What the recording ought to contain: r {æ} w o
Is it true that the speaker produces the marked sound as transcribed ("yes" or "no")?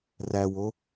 yes